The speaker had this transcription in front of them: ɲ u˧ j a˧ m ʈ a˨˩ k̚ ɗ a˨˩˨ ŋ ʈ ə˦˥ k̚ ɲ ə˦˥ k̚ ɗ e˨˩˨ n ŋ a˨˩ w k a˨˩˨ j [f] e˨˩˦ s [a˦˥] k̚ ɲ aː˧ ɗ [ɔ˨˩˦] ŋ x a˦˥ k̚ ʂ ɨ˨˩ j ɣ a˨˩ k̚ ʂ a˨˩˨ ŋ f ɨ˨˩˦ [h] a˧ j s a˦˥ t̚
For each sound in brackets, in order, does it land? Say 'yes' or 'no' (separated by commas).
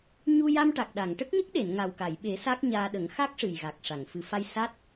no, yes, no, no